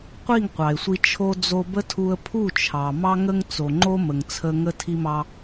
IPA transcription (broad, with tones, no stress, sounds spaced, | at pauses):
qʷ i˦˨ ŋ qʷ ɑ˨ ɪ̯ sʷ i˧ t͡ʃʰ o˧ d͡z o˧ b ə˦ tʰ u˧ ə̯ pʰ u˦˨ t͡ʃʰ ɑ˨ m ɑ˧ ŋ ə˧ ŋ t͡s o˨ ŋ͡ǃ o˧ m ə˨ ŋ t͡sʰ ə˧ ŋ ə˧ tʰ i˧ m ɑ˧